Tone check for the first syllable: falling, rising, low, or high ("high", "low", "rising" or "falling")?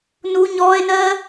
high